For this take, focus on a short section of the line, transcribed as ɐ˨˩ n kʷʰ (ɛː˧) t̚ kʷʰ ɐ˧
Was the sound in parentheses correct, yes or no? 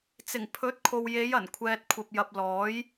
yes